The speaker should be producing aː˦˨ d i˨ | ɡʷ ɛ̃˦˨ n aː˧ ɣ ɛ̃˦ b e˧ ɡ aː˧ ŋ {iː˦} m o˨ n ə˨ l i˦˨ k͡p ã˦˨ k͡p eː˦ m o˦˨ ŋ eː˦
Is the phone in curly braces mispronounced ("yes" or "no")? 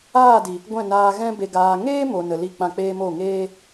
yes